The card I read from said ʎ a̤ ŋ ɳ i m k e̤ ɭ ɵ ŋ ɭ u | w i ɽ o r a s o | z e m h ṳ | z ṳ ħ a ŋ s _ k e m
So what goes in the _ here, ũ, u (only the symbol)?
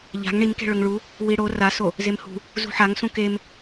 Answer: ũ